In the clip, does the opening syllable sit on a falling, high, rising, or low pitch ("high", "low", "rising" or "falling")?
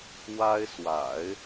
high